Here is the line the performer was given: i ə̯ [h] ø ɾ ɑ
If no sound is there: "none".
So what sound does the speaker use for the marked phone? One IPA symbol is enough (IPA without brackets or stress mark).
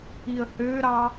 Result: h